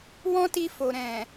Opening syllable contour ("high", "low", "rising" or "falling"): high